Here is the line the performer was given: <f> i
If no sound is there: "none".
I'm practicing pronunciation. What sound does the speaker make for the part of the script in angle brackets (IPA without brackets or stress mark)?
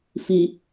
f